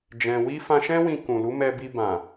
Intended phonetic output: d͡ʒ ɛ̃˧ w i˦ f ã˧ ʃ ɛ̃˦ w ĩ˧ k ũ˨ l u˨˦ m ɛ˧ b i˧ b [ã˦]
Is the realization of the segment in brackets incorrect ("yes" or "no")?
yes